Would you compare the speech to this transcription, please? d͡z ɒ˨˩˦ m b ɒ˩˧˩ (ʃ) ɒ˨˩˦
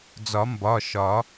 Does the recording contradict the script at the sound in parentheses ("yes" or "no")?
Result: no